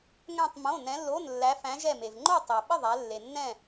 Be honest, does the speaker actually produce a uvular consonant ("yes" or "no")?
no